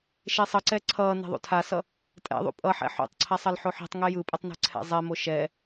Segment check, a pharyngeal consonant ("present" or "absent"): present